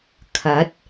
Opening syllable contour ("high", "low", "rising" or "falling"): rising